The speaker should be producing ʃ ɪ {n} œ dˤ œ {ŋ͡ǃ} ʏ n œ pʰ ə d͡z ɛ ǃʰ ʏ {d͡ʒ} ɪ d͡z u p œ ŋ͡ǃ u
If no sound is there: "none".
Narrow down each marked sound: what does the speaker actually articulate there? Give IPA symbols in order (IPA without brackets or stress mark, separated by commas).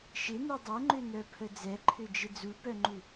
n, ŋ͡ǃ, d͡ʒ